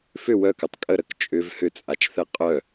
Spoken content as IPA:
f ʏ w œ k ʏ tˤ kʼ ə ɾ ə k t͡ʃʼ ʏ v h ʏ t͡sʼ a t͡ʃ θ ɛ qʼ œ

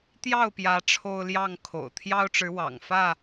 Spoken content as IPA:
t̪ j ɑ˥˨ ʊ̯ p j ä˨˦ ʈ͡ʂʰ o˦ ʊ̯ l j ɑ˥˨ ŋ kʰ o̰˨˩ ʊ̯ t̪ʰ j ɑ˦ ʊ̯ ʈ͡ʂ ɻ̩˨˦ w ɑ̰˨˩ ŋ f ä˥˨

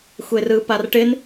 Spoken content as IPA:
xʷ e r ɯ p a r ʈ ɪ n

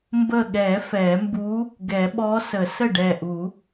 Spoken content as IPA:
m b ə˧˩ ɠ ɛ˨˩˦ f ɛ˨˩˦ m b u˧˥ | ɡ ɛ˨˩˦ ɓ ɔ˧˥ s ə˨˩˦ s ə˥˩ ɖ ɛ˧˩ ʔ u˨˩˦

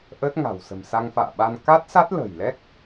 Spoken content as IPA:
ʔ ə˦˥ t̚ ŋ a̤˨˩ w s ə̤˨˩ m s a˧ ŋ f a̰ː˧˨ ɓ a˧ n k a˦˥ t̚ s a˦˥ t̚ l ə̤˨˩ j l ɛ˦˥ k̚

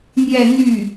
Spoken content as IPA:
n̪ j ɛ˥˧ n̪ y˥˩

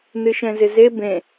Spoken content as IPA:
n ɨ ʃ ɛ̃ z ɪ z e b ẽ

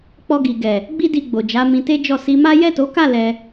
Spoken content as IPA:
k͡p ɔ˧ ɡ i˨ ɡ ɛ˨ | ɡ͡b i˦ d i˧ ɡ͡b o˨ d͡ʒ a˨˦ m ĩ˧ t e˦ d͡ʒ ɔ˦˨ s i˧ m a˦ j ɛ˦˨ t o˨˦ k a˦˨ l ɛ˧

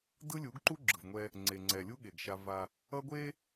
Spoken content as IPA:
d ɯ˦ lʲ u˨˦ ɡ ǃ u˦ ɡ͡ǁ ɯ˨ v ŋʷ ɛ˦ | ŋ͡ǀ e˨ ŋ͡ǀ ɛ˨ lʲ u˦ ɠ e˨ ɡ ʃ a˦ v a˦ | ʌ˦ ɡʷ e˦

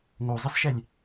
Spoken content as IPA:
ŋ o zˤ i s ʃ ɛ lʲ

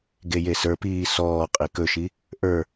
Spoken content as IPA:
ɡ e j e s ə˞ p iː s ɔː qʼ i k ɵ ʃ i | ʔ ə˞

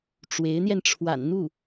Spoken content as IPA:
ʈ͡ʂ w e˧˥ ɪ̯ n̪ j ɛ˧ n ʈ͡ʂʰ w a̰˨˩ n n̪ u˥˩

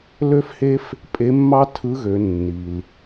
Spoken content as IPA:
l ø˥ f h e˥ f | pʼ e˧˥ mː ɑ˥ tʰ ɯ˧˥ ɣ ø˩˧ nː i˩ l

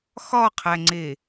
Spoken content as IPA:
x ɒ qʰ æ ŋ͡ǀ e

